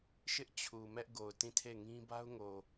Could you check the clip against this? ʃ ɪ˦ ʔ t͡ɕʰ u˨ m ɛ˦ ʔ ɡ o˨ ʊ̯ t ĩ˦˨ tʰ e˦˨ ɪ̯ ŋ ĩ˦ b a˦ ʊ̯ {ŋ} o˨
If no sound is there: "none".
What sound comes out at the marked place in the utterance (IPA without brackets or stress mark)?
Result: ŋ